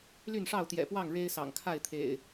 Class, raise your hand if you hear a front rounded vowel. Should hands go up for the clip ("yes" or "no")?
yes